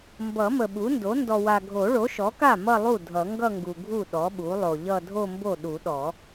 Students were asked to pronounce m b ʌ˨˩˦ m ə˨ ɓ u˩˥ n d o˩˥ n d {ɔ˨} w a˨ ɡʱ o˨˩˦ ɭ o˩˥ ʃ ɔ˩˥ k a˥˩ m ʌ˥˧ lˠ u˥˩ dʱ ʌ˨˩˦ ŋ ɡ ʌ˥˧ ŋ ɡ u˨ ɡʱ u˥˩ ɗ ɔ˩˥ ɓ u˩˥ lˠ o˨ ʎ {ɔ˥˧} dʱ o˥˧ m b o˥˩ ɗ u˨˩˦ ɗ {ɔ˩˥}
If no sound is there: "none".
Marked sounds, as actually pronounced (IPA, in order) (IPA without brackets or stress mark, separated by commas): ɔ˨, ʌ˥˧, ɔ˨˩˦